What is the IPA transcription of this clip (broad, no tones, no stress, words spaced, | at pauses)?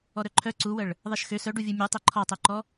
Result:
ɔɾœǃʰœ ǀuwəɭ | ðˤeʃxø sœɖuvʲu mʲu tˤeǃʰɔtˤuǃɔ